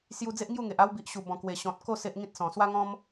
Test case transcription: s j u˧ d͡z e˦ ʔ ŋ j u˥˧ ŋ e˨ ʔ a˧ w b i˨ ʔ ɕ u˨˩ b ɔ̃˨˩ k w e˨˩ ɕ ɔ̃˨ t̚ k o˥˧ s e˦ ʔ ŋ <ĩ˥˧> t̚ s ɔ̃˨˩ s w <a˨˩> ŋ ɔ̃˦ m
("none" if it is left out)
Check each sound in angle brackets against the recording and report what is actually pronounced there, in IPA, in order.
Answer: ĩ˦, a˦

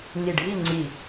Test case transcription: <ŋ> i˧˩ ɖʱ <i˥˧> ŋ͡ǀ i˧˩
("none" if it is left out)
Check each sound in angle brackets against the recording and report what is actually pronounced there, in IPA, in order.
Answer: ŋ, i˥˧

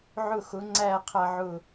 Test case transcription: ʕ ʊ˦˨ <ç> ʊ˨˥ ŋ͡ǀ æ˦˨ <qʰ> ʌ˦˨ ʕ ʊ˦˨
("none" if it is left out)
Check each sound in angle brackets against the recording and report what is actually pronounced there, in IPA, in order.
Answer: x, qʰ

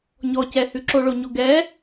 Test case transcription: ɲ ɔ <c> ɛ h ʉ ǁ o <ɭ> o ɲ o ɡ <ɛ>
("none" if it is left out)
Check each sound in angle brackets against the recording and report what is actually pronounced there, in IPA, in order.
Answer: c, ɭ, ɛ

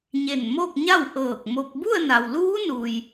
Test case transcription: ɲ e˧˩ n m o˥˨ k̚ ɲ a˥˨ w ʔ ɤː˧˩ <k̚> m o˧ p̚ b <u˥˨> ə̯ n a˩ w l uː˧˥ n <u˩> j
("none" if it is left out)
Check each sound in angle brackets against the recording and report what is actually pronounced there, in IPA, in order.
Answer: k̚, u˥˨, uː˩

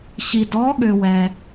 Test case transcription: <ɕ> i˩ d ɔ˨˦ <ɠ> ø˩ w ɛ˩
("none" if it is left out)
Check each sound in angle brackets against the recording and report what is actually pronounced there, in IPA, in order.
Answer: ɕ, ɠ

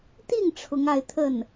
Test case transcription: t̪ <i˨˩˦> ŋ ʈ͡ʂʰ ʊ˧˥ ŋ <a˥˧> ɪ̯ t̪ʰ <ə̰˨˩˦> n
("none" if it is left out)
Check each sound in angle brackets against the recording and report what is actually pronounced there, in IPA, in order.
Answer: i˥˩, a˥˧, ə˥˩

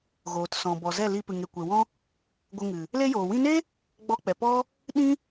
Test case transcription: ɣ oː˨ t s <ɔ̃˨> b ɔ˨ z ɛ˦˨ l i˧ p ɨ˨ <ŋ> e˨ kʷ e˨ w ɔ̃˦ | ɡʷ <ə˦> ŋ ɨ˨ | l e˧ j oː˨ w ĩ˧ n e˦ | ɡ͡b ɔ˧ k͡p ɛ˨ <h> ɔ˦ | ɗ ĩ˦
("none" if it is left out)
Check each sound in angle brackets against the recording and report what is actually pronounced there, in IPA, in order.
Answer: ɔ̃˨, ŋ, ə˧, p

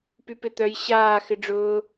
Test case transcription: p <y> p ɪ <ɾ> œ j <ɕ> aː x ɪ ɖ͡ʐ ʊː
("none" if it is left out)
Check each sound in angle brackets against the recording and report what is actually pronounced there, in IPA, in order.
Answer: y, t̪, ɕ

